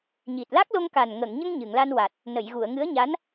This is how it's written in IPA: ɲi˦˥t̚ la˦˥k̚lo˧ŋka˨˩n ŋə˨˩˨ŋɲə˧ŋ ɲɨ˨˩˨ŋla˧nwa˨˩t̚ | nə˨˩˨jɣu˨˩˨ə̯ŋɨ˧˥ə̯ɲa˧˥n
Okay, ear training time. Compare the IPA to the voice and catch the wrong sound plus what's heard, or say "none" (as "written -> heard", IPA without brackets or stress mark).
i˦˥ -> i˨˩